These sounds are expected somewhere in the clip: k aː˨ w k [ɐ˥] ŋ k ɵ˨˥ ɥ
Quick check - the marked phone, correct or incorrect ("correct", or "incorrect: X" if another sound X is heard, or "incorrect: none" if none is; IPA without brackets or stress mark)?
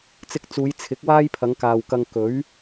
incorrect: ɐ˧